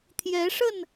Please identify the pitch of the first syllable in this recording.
rising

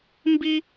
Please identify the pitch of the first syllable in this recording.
high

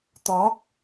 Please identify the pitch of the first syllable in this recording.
rising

